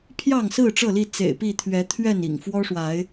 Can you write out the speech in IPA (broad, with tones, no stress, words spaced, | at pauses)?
pʰjɑ˥˨ŋsɹ̩˥˨ ʈ͡ʂɤ˥˨li˥˨ t͡sḛ˨˩ɪ̯pi˥˨t̪ʰɥɛ˨˦ t̪ʰɥɛ˥˨nḭ˨˩ŋ fwɔ˦ʂwa˨˦ɪ̯